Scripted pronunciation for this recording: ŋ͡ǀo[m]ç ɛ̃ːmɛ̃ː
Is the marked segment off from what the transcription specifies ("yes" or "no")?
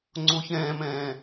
yes